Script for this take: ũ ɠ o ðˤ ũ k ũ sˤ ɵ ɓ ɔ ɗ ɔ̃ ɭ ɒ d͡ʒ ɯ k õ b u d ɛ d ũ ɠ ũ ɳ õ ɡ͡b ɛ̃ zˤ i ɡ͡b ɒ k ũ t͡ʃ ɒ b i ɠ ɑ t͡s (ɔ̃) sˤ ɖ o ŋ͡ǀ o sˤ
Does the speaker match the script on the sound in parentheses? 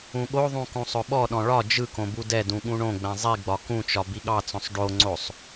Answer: yes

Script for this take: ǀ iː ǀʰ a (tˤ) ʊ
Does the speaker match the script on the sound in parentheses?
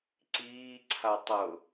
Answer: yes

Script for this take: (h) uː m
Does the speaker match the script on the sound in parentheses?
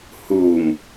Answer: yes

